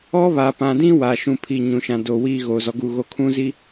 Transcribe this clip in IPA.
ɔ˦βa˨pã˨dĩ˦ waː˨ʃũ˦˨pʰi˦˨ ɲũ˨ʃã˨ do˨wiː˦ ɣoː˨zɔ˨ɡu˦˨ɣo˦ kʰũ˦zi˨

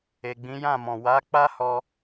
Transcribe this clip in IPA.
e˨ɡ͡bĩ˨˦jã˦˨mɔ̃˨ wa˨˦ k͡pa˦hɔ˧

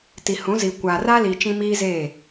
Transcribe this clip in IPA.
ti˨hũ˨˦zi˨ kʷa˨ra˦li˨ t͡ʃĩ˦miː˦zeː˦˨

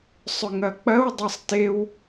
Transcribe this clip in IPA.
sˤʏŋɐk͡pɐw dˤɐsˤtew

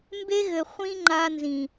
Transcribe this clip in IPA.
mbe˦ɣɘ˨ χʷĩ˦ ŋ͡ǃa˦ nzĩ˨

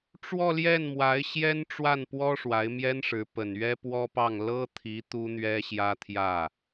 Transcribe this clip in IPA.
ʈ͡ʂwɔ˥˧ljɛ˥˩nmwa˧˥ɪ̯ ɕjɛ˥nʈ͡ʂwa˥˩npwɔ˥ ʂwa˧˥ɪ̯mjɛ˥nʂɻ̩˧˥ pə˨˩nɥɛ˥pwɔ˥pɑ˥˩ŋ lɤ˥t̪ʰi˧˥ t̪u˥n̪ɥɛ˥ɕjä˥t̪ʰjä˥˩

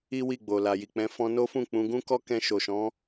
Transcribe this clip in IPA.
i˦wi˦˨ɡ͡bo˨ la˨ji˨k͡pɛ̃˨˦ fɔ̃˧ no˦fũ˦˨ k͡pũ˧ ɡũ˦kɔ˦kɛ̃˧ ʃo˨ʃɔ̃˨˦

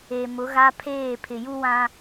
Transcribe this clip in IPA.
e˨ mʊ˨˦ɣa˦ pʰeː˦˨pʰɪ˨ju˦wã˦

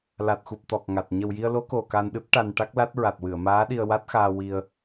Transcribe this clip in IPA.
la˨˩t̚xu˨˩p̚ t̪ɔ˨˩k̚ŋa˨˩t̚ ɲə˨˩wji˧ə̯lo˧˥ko˨˩ ka˧nɗɨ˦˥p̚ʈa˧n ʈa˦˥k̚la˦˥t̚ɹa˨˩t̚ wɨ˨˩˨ə̯maː˧˥ɗi˧ə̯ wa˦˥t̚xaː˧ wi˧ə̯

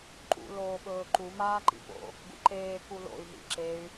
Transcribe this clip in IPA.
ǃṵ loːɓɵːǃu maːǃḭpo̰ | ɡṵǃeː kulo̰y̯ ɦḭǁey̯

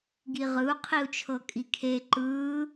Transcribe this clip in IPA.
ɡiʁɯu̯qʰiu̯ t͡ʃʰɤkʼikʰe ǃɯː

